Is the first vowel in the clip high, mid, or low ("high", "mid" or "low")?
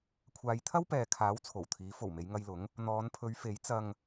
low